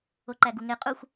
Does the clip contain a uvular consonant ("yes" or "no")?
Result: yes